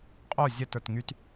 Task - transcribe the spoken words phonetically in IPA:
qʼ o zʲ ə t ə˞ t ŋ y t

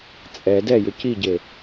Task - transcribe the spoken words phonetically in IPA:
t͡sʼ ɛ d ɛ j ʏ c i ɟ e

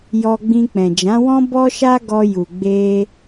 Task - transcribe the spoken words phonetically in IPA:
j ɔ˧ ɡ͡b ĩ˧ k͡p ɛ̃˨ d͡ʒ ã˨˦ w ɔ̃˦ b ɔ˦ ʃ a˦ ɡ ɔ˧ j u˨ ɡ͡b e˧

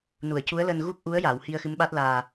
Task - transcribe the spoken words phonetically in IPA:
n u˨˩˨ ə̯ c u˧˥ ə̯ l əː˧ n ɣ u˦˥ k̚ ʔ u˧˥ ə̯ j a˨˩˨ w h i˧ ə̯ x ɨ˧˥ m ɓ a˦˥ t̚ l aː˨˩

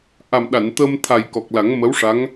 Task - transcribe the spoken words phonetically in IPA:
ʔ a˨˩ m ɗ a˨˩˨ n t̪ əː˧ m t̪ʰ a˨˩ j k ɔ˨˩ k̚ l a˨˩˦ ŋ m ə˧˥ w ʂ a˧˥ ŋ

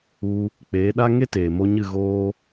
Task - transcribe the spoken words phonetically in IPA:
u˧ | k͡p eː˨˦ ɗ a˦ ŋ e˦ t eː˨ m o˧ ɲ ɨ˦˨ ɣ oː˦

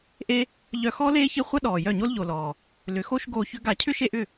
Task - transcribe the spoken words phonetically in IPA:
ʔ e˦ | ʎ œ˧ x ɔː˦ l eː˦ ç ɪ˦ χʷ ɐ˦ ɗ ɔː˨ j œ˦˨ ɲ o˦ l ʎ o˨ l ɔː˨ | l ʏ˨˦ x o˦ ʃ ɡ oː˧ ç ʏ˦ ɡ a˦˨ cʰ ʏ˦ ʃ e˧ ʔ ʏ˦˨

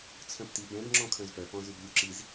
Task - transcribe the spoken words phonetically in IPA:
t͡sʰ œ̃ p t i b ɛ̃ b ŋ͡ǁ ɔ̃ kʰ œ̃ z p œ p ɔ̃ z y b lʲ u ǁ i z

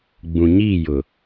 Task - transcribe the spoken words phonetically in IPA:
ɡ͡b ũ˨ ɲ iː˦˨ j ʊ˨

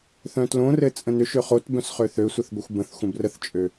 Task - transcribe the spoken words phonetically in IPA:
θ œ̃ t l õ r ɘ t͡sʼ ə̃ n ʏ ʃ ø χ o t b œ̃ s χ ø θ ø sʷ ɘ θ ɡʷ ɘ xʷ b ə̃ θ xʷ ə̃ b r ə θ t͡ʃʼ ø

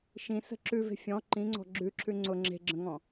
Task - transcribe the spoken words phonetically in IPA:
ʃ ĩ s ə̤ ǁ ʉ v e̤ fʲ ɔ̃ ǃ ĩ ŋ͡ǀ ɔ̤ ɡ͡ǁ ʉ ǁʰ ʉ ŋ͡ǀ ʊ ŋ͡ǁ e̤ ɡ͡ǁ ə̃ ŋ ɔ̃

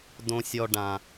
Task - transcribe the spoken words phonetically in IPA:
d õ˨ sʲ ɔ˨ ɖ ã˨

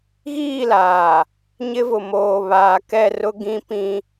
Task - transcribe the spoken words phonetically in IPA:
ɣ iː˦˨ l aː˨ | ɲ ɪ˦ v ʊ˨ m oː˨ β aː˨ k ɛ˦˨ r ʊ˦ ɡ ĩ˦ p ĩ˦

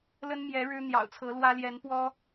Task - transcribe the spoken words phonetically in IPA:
l ə˦ n m j ɛ˨˦ ɻ ɻ̩˦ n̪ j ɑ̰˨˩ ʊ̯ t͡sʰ ɤ˨˦ l w ä˦ l j ɛ˨˦ n p w ɔ˦

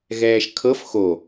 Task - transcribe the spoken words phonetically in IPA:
ɣ ɛː ʃ kʰ ɤ f x o

